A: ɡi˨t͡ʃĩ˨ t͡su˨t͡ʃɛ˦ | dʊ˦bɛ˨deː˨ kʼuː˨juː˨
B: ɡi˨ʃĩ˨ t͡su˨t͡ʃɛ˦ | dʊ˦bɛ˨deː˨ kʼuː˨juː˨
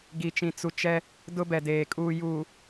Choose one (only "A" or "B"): A